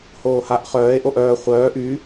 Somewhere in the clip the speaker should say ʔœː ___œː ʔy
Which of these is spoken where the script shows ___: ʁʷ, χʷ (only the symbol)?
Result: χʷ